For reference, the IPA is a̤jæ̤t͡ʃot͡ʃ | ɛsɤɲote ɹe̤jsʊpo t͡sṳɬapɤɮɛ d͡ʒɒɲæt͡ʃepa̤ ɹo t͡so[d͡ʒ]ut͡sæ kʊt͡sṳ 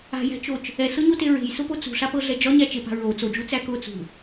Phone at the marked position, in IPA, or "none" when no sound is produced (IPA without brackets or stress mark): d͡ʒ